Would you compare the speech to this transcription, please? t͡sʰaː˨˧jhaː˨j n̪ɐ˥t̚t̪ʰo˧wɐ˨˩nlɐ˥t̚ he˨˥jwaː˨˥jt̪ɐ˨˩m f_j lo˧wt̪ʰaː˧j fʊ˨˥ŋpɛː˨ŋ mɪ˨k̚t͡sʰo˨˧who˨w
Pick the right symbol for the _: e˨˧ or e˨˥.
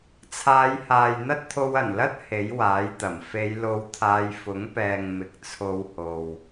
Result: e˨˧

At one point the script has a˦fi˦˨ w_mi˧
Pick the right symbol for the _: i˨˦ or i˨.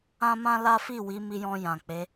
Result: i˨˦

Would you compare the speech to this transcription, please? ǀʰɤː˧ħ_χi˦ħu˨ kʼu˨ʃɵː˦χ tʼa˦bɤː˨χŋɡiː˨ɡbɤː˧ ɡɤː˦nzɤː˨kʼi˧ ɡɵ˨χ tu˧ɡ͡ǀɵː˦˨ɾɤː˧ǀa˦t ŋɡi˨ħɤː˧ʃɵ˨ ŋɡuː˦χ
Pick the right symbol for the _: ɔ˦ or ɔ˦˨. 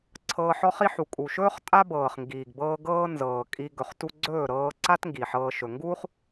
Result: ɔ˦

